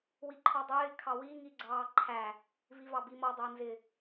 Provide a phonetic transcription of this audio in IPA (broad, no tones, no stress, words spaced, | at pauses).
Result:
wiǃʰɔdˤɪː kʰɑwi ŋiɡ͡ǀɑːǃʰæ | vivɑbimɔ dˤɪːnzɪ